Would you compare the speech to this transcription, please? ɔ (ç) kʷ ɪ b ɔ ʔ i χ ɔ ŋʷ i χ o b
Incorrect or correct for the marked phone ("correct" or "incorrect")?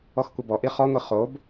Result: incorrect